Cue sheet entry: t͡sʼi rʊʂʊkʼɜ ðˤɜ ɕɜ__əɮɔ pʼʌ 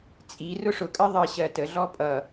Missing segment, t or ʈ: t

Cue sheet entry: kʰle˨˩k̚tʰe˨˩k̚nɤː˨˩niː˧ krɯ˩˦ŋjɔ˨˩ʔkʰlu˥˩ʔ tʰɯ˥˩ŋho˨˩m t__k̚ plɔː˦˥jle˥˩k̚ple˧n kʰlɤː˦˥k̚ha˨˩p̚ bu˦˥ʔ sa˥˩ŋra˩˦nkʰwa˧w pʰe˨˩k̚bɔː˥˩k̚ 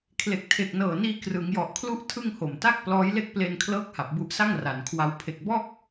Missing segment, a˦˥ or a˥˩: a˥˩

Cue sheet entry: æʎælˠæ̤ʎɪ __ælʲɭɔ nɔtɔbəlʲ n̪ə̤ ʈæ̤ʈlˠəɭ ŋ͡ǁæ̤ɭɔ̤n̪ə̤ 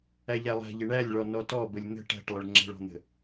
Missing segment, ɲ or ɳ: ɳ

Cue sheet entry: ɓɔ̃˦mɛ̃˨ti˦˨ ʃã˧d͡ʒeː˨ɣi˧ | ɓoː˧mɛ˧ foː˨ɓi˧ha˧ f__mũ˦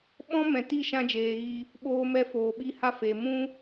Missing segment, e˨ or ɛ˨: e˨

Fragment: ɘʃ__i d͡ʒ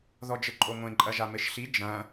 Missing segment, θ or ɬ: ɬ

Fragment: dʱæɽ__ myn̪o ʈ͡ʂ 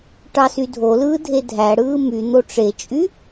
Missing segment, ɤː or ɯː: ɯː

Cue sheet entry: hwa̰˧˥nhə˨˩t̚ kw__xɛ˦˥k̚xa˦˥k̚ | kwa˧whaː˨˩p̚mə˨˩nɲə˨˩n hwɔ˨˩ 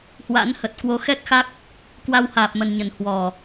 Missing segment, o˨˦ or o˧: o˨˦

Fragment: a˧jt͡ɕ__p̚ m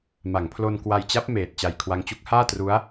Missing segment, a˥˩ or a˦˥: a˦˥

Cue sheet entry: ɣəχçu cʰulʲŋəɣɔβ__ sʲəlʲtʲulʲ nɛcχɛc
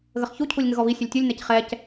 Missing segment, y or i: i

